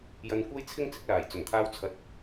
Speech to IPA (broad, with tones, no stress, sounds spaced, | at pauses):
j ɐ˧ n kʷ ɐ˥ j t͡sʰ ɪ˥ ŋ t͡s ɪ˨˥ k̚ l aː˨˩ j t͡s ɵ˨˩ n t̪ʰ aː˧ w t͡sʰ ɐ˧ t̚